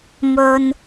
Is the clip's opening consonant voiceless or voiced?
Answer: voiced